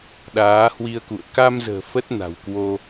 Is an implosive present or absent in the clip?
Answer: present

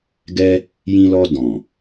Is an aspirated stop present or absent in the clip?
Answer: absent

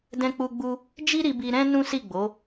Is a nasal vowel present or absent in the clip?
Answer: present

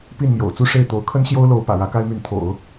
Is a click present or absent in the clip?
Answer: absent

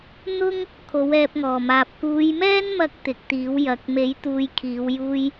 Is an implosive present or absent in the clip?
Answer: absent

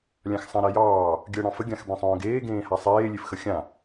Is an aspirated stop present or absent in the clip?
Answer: absent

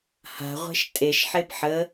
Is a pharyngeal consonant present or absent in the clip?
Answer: present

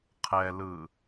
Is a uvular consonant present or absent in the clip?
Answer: present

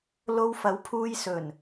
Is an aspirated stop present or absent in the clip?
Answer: present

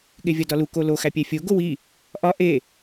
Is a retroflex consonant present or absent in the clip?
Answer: absent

